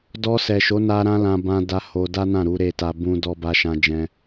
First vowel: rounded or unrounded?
rounded